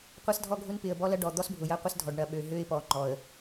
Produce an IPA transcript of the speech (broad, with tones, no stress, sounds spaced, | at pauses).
qʷ ɐ˦ s dʱ ɔ˦ ɡʱ ʊ˦ n p ɪ˨ ə̯ b ɔ˦ l ɐ˦ ɖ ɔ˨ d̪ ɔ˦ s bʱ ʊ˨ j ɐ˦ qʷ ɪ˦ s dʱ ɔ˨ ɖ ɳ ɐ˨ ɓ ø˨ ɦ ø˦ ɪ̯ p ɔ˨ ŋ͡ǃ ɔ˨ ə̯